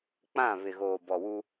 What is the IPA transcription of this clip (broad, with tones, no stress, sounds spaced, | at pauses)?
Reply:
k͡p ã˦˨ β ɪ˨ ɣ oː˨ b ɔ˨ w u˦